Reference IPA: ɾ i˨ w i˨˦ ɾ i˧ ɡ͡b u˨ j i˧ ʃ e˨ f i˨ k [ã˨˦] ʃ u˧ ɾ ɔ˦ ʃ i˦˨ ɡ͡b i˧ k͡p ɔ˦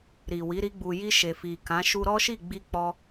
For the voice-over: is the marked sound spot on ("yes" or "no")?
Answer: yes